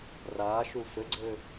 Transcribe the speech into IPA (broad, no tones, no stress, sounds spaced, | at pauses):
r aː ʃ u f ɘ ɡ͡ǀ ɘ